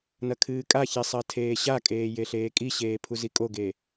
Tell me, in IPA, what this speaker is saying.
n ɐ kʰ ɨː kʼ a ç e sˤ ɐ tʰ eː ɕ a kʼ eː j e ɬ eː kʼ i ɕ eː pʰ u z i kʼ o ɡ e

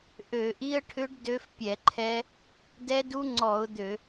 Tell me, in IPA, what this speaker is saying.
ʔ ø˧˩˧ ʔ i˦˥ ə̯ ʈʰ ʏ˦˥ ɖ d ø˦˥ f pʲ ɛ˧˩˧ ǃʰ ɛ˦˥ | d ɛ˦˥ d u˦˥ ŋ͡ǀ ɔ˧˩˧ ʊ̯ d̪ ø˧˩˧

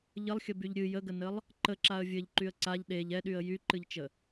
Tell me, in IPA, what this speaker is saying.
ʎ ə lˠ xʲ ə b y ʎ ɾʲ ɨ j ə ɡ ə n ə lˠ | ǃ ə ǁ a ə̯ vʲ ɘ ʎ ǃ y ə̯ ǀ a ʎ ɗ e ʎ ɛ ɗ y ə̯ j y ǃ ɨ ʎ t͡ʃ ə

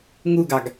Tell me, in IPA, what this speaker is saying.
ŋ u ɡ ɑ ɡ

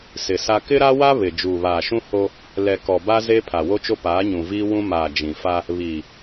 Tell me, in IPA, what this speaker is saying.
s ɪ˨ s a˦ k ɪ˦ ɾ a˦ w a˦ β ɪ˨ d͡ʒ uː˨ β aː˨ ʃ ũ˦ h o˦ | l ɛ˨ k ɔ˨ b a˦ z e˦ pʰ a˨ w o˦ t͡ʃ o˦ p aː˨˦ ɲ ũ˨ v iː˦ w ũ˦ m aː˨ d͡ʒ ĩ˨ f a˦ | β iː˨

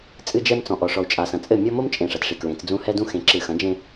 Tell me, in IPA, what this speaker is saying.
t͡sʼ ɨ˦ d͡ʒ ɛ˦ m t͡s ɔ̃˨ ʔ ɔ˨ ʂ ɔ˨ u̯ t͡ʃʼ a˨ s ɐ̃˨ t͡sʼ ɘ˦˨ mʲ ɔ˦ m o˦ m t͡ʃʼ ẽ˨ ʂ ɐ˨ t ʂ i˨ k ɹ ẽ˨˦ t͡s d͡z ũ˦ h ɛ˦ d ũ˦ x ẽ˨ ǁ ɨ˨ x ɐ̃˨˦ d͡ʒ ẽ˦

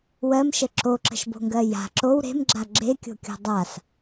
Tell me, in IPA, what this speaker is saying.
w ɜ m ʃ ə ǁ o ǁ ə̤ ʃ b o̤ ŋ ɡ ɜ j a̤ ǁ o w ɾ e̤ m ɡ͡ǁ a ɡ͡ǁ e kʲ o̤ kʲ o̤ dˤ a s

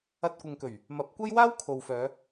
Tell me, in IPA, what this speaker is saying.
ɐ˧ t̚ kʷ ɪ˨ ŋ k ɵ˨˩ ɥ | m ɐ˨˥ p̚ kʷ ɐ˥ j w aː˥ w kʰ o˨ w f œː˨˧

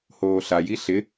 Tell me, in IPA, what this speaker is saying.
h oː ɬ a j i ɬ ɪ

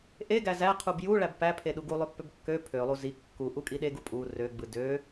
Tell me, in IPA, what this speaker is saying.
ʔ e ɡ æ z æ qʰ u b j u ɭ æ b p æ pʰ e ɗ u ɡ u lˠ ø pː ø b kː ø pʰ ø lˠ u z i kː u ʔ u kʼ i ɗ e ɡ u pʼ u r ø ɡ͡b ɯ d ø

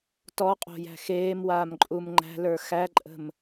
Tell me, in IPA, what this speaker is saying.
t ɔ qʼ o̤ j æ̤ x eː m w aː m ǃʼ u m ŋ͡ǃ æ̤ l ə˞ x æ ǃʼ ə̤ m

